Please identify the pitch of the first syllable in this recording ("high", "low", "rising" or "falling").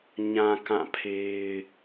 low